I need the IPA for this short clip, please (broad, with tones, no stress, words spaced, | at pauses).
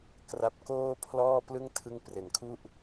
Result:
kra˥˩p̚ koː˥˩pʰlɔː˥˩plɯ˥˩ŋ tʰɯ˦˥ŋpre˨˩nkʰu˥˩ʔ